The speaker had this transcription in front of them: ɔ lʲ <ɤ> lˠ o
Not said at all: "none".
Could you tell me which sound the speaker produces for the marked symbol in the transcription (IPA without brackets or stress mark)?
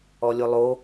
o